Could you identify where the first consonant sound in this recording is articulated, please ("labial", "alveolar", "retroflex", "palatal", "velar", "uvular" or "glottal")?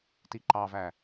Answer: alveolar